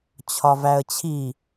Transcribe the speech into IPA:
t͡ɕʰ ɒ v æ ə̯ t͡ɕʰ i

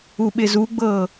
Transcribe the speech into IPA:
u ɓ ɪ z u ɡ͡b ɤː

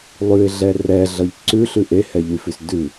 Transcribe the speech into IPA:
lˠ ʉ ɪ̯ ɮ ɛ r ɛ ɮ ʌ ʎ ǀ ʉ ɬ ʉ ʔ e h ɛ ʎ y f ʉ s d ʉ

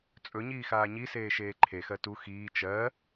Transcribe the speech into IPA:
t͡sʼ ɵ ɲ iː x aː ɲ i s eː ʃ eː ǃʰ e x ɜ t u x iː t͡ʃ ɜ

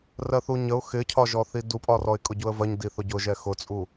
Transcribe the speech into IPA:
r ɜ θ u ɲ ə ʊ̯ x ɪ cʰ ɒ ʒ ɔ θ i d u pʼ ɒ r ɔ ɪ̯ kʼ ʊ ɟ u ə̯ v ɜ ɲ d i θ ʊ ɟ ʊ ʒ ɛ x ʊ t͡sʼ u

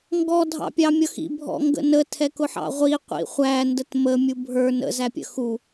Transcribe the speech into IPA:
ŋ ɡ ɔ dʱ ɑ̰ pʲ ɑ mʲ ʌ x ḭ bʱ ɔ̰ ŋ ɡ ə̰ n ə tʰ ɛ k ʊ ħ ɑ̰ ʁʷ i qʷ ḭ χʷ æ n d ə t m ə mʲ u bʱ ə˞ n ə̰ z æ pʲ ə̰ x u

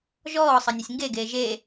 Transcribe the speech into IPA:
ʒ ɔː sˤ ɐ nʲ ɘ sʲ ŋ ɡ e ɡ eː ʒ e

